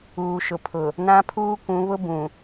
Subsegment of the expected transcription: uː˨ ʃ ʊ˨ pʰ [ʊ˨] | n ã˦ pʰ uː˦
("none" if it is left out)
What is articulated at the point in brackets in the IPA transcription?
ʊ˨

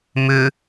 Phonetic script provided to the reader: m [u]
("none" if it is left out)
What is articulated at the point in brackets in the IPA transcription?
ʏ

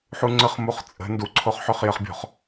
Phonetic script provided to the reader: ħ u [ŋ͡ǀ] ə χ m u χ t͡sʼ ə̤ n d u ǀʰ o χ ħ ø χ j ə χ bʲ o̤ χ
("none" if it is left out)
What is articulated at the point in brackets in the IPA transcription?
ŋ͡ǀ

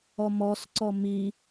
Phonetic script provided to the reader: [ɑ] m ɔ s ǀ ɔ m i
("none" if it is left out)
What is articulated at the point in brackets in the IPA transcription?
ɔ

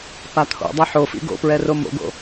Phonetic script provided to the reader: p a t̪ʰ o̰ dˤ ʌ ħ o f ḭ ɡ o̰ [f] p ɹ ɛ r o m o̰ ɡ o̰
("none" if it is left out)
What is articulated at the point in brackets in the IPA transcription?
none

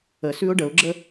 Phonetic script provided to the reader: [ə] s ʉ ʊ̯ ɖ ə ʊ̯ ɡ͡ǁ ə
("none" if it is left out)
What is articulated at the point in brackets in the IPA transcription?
ə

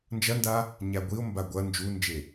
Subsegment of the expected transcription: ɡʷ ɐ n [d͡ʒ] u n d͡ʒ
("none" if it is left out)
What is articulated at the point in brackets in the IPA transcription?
d͡ʒ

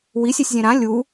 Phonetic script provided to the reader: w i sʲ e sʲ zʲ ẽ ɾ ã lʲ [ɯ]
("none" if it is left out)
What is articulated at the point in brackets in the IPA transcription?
u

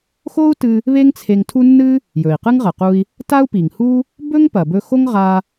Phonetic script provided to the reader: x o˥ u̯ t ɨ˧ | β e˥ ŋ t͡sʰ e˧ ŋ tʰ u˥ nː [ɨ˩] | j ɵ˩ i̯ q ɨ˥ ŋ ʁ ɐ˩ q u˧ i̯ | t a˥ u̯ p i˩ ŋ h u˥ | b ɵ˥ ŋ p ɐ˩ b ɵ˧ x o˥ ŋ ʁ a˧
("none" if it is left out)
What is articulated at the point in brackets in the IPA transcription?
ɨ˥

